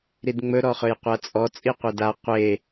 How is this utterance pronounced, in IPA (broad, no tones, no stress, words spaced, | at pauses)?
ɾidŋ͡mɵɾɔ χɵjqʷat͡sʼɔ t͡sʼiqʷeda qʷe